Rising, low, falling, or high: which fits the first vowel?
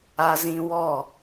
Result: high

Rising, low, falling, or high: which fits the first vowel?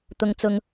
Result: high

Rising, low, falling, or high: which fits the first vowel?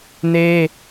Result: high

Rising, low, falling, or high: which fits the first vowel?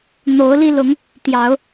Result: rising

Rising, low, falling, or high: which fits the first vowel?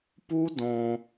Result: high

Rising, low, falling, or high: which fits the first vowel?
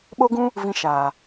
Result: high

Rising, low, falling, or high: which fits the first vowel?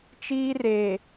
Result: high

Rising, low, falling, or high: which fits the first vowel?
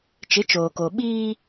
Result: rising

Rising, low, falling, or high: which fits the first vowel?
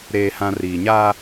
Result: low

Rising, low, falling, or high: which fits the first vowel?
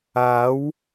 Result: rising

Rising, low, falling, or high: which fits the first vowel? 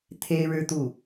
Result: high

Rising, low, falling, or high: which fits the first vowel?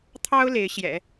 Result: high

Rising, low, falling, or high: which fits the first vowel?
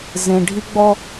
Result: low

